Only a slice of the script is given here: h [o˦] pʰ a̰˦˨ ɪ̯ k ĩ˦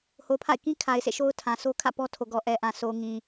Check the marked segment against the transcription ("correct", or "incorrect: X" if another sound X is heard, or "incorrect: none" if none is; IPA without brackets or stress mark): incorrect: o˨